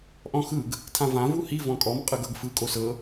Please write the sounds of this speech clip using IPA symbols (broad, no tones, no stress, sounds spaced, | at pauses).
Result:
ʔ ɔ̃ x ɯ ɡ | tʰ ã v ã v u h i v ɔ̃ kʼ ɔ m qʼ ɯ ɡ ɤ ɡ f ɯ kʼ o s ɤ